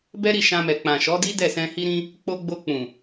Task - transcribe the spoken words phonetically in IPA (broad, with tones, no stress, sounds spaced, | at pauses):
b ɛ˦ ɾ i˦˨ ʃ ã˧ m ɛ˨ k͡p ã˨ ʃ ɔ˨˦ d i˦ d ɛ˦˨ s ɛ̃˧ h i˦ ɾ ĩ˦ | k͡p o˧ ɡ͡b o˧ k͡p ũ˨